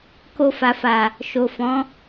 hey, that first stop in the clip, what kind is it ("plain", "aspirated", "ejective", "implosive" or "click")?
plain